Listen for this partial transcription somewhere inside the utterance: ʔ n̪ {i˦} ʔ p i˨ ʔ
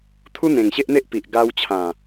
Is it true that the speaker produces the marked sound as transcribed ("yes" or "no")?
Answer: no